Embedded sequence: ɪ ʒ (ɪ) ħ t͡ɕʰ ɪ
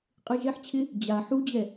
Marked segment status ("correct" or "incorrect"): incorrect